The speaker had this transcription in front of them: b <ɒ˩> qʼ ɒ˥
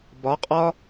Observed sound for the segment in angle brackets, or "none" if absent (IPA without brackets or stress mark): ɒ˩˥